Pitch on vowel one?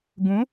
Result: rising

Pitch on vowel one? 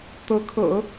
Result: rising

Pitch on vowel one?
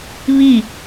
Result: falling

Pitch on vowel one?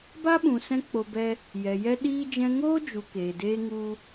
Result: high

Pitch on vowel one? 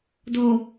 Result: low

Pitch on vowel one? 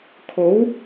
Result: rising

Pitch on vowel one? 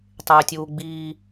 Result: high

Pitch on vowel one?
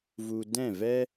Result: low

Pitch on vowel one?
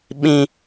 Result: high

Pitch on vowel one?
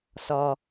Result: low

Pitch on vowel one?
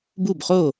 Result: falling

